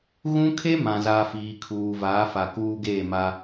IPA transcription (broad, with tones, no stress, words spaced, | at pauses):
ɣũ˦kʰe˦ mã˨za˨ fiː˨kʰuː˨vaː˨˦fa˨ kuː˦ɡeː˦˨ma˦